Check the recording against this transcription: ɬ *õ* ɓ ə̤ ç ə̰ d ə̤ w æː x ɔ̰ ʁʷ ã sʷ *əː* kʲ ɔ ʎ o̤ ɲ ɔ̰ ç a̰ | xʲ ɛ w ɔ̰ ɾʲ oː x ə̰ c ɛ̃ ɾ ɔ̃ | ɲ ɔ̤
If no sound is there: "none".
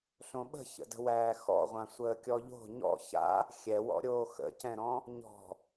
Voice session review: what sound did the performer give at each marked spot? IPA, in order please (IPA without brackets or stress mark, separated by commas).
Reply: õ, əː